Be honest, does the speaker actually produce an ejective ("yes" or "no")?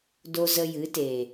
no